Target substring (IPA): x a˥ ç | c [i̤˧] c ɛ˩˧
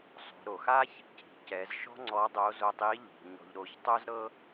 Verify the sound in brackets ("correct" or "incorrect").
incorrect